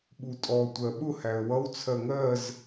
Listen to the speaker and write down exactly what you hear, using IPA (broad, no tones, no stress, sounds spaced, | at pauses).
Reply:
ɓ u tʼ ɔ tʷ ɜ ɓ ʊ h æ ə̯ w ʌ w t͡sʰ ɜ ŋ ɜ z